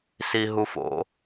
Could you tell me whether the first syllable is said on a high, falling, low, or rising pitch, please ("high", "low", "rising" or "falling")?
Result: high